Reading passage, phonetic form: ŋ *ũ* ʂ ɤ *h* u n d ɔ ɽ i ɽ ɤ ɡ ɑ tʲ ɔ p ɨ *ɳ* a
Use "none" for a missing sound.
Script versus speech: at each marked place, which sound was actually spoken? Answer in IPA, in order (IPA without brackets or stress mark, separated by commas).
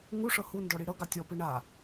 u, h, ɳ